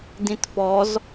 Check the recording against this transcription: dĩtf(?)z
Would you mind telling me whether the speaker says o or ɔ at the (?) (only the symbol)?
ɔ